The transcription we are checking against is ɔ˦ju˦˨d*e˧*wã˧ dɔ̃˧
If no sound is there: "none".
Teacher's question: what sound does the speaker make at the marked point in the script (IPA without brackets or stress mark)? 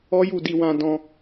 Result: i˧